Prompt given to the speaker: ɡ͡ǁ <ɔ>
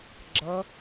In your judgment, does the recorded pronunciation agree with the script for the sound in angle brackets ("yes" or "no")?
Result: no